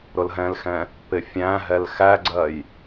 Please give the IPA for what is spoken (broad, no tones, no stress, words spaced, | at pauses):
ɾʊlɦɛ̃lxɛ̃ | pɪfʲæ̃ɦɛl xæɡ͡ǀɜj